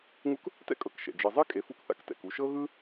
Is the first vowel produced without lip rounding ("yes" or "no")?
no